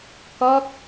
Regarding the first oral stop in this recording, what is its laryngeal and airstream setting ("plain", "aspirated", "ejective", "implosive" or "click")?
plain